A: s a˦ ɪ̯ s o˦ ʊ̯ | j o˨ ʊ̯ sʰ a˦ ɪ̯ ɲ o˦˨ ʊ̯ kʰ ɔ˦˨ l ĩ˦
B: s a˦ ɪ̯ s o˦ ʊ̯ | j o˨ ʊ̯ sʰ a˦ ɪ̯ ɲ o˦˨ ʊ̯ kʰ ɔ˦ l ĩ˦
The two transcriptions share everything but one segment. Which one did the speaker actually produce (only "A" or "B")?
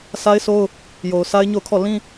A